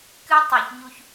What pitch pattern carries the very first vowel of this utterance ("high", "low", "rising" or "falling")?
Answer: high